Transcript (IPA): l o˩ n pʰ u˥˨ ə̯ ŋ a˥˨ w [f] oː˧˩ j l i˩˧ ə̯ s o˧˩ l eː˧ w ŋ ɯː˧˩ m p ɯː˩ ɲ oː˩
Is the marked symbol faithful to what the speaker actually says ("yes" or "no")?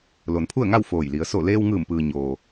yes